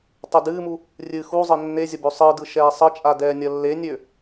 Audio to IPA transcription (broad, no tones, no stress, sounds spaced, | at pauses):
tˤ u d ɨː m u | rʲ ɨ x u zˤ ə nː e zʲ ə b ø sˤ ɯ d ɯ ʃ ɛː sˤ ə t͡ʃʼ a d ɛː nʲ ɐ lː e nʲ ø